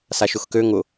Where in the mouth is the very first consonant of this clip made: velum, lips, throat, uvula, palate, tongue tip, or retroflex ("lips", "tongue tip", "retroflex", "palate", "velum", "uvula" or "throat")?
tongue tip